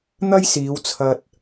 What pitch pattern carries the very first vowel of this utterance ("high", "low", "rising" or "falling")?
high